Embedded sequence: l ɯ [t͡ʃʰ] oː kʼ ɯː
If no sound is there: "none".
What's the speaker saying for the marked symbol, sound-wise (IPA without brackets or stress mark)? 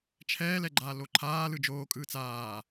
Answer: d͡ʒ